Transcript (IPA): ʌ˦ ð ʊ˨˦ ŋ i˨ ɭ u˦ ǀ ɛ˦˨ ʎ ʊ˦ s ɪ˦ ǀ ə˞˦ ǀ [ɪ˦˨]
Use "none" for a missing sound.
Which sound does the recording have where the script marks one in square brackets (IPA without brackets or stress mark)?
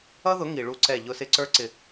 ɪ˨